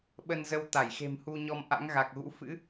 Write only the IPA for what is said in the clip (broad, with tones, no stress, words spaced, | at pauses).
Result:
ɓə˧nzə˧w t̪a˧˩jxe̤˨˩mhu˧ɲɔ˧m ʔa̰˧˥ŋɣa˨˩k̚ɣṵ˧˥ fɨ̰˧˥